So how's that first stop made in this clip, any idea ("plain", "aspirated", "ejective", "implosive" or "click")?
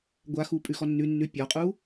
plain